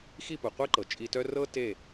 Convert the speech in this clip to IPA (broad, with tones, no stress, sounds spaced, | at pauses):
x i˥˩ p u˩ qʷ e˥ ǃ ɤ˩ t͡ʃʼ i˧ t œ˥ r ɤ˥ t e˥˩